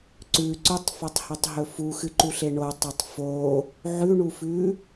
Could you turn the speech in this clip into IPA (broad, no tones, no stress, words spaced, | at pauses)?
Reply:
ǀʉ ǀʉtˤfatˤhetˤɦɵ fuxɨǃuɬe ɳotˤotˤ fo | ʕʉɳufʉ